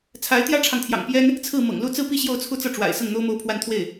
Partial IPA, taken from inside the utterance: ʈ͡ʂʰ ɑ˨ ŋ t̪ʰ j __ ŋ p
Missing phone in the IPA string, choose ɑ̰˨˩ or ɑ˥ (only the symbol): ɑ̰˨˩